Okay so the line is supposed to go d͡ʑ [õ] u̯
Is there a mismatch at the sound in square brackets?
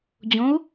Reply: no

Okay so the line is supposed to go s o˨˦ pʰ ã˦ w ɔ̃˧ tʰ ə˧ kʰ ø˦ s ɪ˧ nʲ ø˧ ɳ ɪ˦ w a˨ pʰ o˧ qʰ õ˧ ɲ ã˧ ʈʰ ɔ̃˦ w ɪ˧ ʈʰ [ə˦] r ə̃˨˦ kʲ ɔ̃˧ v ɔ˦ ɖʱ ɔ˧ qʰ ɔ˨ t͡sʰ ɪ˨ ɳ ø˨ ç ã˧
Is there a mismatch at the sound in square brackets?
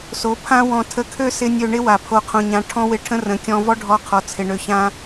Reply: yes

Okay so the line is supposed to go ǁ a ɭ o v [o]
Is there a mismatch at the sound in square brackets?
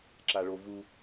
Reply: yes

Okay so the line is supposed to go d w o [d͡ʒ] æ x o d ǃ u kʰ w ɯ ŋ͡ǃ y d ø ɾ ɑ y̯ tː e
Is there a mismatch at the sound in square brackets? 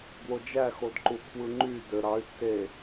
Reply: no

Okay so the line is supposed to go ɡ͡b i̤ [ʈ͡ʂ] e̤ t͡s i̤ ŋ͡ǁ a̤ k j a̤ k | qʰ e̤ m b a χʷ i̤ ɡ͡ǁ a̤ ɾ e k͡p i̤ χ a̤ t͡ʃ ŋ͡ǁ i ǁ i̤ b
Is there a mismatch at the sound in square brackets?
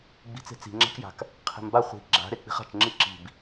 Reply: yes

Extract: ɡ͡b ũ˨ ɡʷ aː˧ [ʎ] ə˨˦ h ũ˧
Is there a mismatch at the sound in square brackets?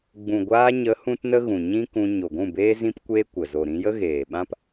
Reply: yes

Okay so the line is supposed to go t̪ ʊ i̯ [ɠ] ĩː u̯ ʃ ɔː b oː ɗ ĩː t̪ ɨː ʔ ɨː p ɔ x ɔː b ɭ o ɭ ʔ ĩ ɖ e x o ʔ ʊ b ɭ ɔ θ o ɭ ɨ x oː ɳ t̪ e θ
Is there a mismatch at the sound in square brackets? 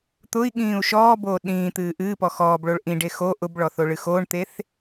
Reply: no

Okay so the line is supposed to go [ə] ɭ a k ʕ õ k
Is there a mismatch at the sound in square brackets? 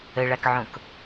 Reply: no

